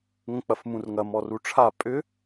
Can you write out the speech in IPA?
ŋ ə̃ k͡p ɐ f m ũ r ŋ ɐ m ɔ r u ʈ͡ʂʰ a pʼ ʏ

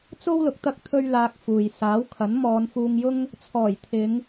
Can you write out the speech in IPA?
t͡s o˥ w l ʊ˨˥ k̚ t̪ ɐ˥ k̚ t̪ʰ ɵ˥ ɥ l aː˧ k̚ f uː˨ j s aː˨˥ w kʰ ɐ˨˥ n m ɔː˨˧ n f uː˧ ŋ j ʊ˥ ŋ | t͡sʰ ɔː˨˩ j t̪ʰ ɪ˨˧ ŋ

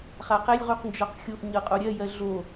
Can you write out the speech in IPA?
χ a q ɛ lʲ ʁ u q n d͡ʒ ɔ q xʲ o ʔ ɲ ɤ qʼ o ɾʲ ɜ j ɜ ɮ o

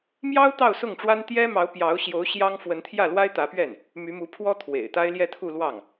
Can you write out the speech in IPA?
m j ɑ˥ ʊ̯ t̪ ɑ˥˧ ʊ̯ s ʊ˥˩ ŋ ʈ͡ʂ w a˥ n t̪ j ɛ˥ m ɑ˧˥ ʊ̯ p j ɑ˧˥ ʊ̯ ɕ j o˧˥ ʊ̯ ɕ j ɑ˥ ŋ f w ə˧˥ n t̪ʰ j ä˥˩ l w a˥ ɪ̯ t̪ ä˧˥ p ɥ ɛ˥˩ n | m y˧˥ m u˧˥ pʰ w ɔ˥ t̪ʰ w ḛ˨˩ ɪ̯ t̪ a˥ ɪ̯ l j ɛ˥˧ t̪ʰ u˥˧ l w ɑ˥˩ ŋ

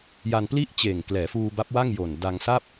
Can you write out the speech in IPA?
j a˧ n p l i˥˩ ʔ t͡ɕ eː˨˩ ŋ k l ɛː˩˦ f uː˧ b a˦˥ p̚ w a˥˩ ŋ j o˨˩ n d a˧ ŋ s a˥˩ p̚

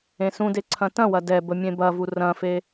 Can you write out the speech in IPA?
ẽ s ũ d e ǀʰ ɐ̃ t ɐ̃ w ɐ d ɛ b ə mʲ ẽ b ɐ v u r ɐ̃ f e

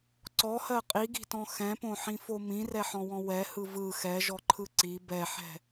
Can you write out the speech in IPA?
ǀ ɔ h ɜ qʼ i ɡ i̤ t ɔ̃ x ɛ̃ p õ ħ ĩ f o m ĩ r ɛ ħ ɔ̃ w ɔ̃ w ɛ h ɯ v ɯ x ɛ ʒ ɔ ǃʰ ɯ ǀ i b ɛ ħ ɛ̤

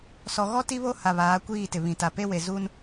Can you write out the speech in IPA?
s ɔ˨ ɣ ɔ˦ t i˦ β o˦ h a˨ β aː˨˦ kʷ iː˦˨ t ɪ˨ β ĩ˨ t a˨ p e˦ w e˨ z u˦ n

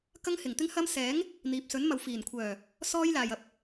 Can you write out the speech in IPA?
k ɐ˥ ŋ h ɪ˨ ŋ t̪ ɪ˥ ŋ h ɐ˥ m s ɛː˨˥ ŋ | n̪ iː˨ p̚ s ɵ˨˥ n m ɐ˨ w f iː˨˩ n kʷʰ œː˨˩ | s ɔː˥ j l aː˨ j ɐ˧ p̚

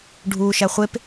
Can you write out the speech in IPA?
ɖʱ uː ʃ æ χʷ e p

